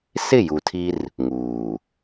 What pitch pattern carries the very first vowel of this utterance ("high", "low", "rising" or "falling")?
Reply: falling